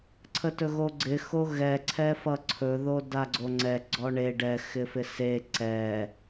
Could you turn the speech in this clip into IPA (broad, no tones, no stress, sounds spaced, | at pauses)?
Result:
ǀʰ ə t ɵ ɣ o ɡ͡ǀ ɪ x o ɣ ɛ ǀʰ ɛ f ʌ ǀʰ ɵ ð o d a ɡ͡ǀ o ŋ͡ǀ ɛ ɡ͡ǀ ɔ ɳ e ɖ ɛ x ɪ f ɪ s e ǀ ɛ